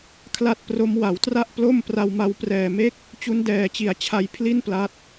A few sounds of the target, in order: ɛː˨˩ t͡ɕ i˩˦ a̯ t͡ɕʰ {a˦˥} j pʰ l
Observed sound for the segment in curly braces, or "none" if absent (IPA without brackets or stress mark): a˧